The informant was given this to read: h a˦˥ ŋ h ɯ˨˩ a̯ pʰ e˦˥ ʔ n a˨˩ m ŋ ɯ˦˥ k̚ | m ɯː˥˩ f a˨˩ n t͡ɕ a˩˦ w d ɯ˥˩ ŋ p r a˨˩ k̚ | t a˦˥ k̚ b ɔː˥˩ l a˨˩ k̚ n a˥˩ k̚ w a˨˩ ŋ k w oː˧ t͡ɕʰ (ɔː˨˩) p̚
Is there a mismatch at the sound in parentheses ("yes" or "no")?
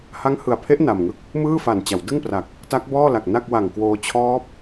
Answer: yes